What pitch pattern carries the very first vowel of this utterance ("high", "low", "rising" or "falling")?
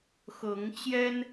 rising